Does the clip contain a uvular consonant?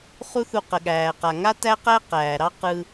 yes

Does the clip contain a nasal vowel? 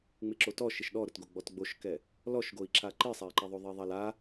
no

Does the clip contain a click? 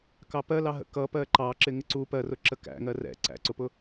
yes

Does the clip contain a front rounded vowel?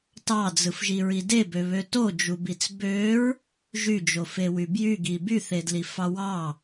yes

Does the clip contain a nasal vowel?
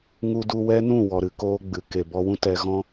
yes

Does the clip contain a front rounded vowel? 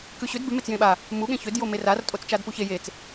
yes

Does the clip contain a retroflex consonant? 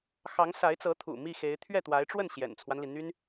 yes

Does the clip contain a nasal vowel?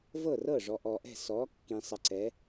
yes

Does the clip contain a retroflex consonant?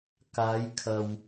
no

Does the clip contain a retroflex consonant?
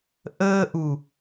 no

